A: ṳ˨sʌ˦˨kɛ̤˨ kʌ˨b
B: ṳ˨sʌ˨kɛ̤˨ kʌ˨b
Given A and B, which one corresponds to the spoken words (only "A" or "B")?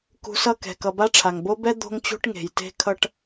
A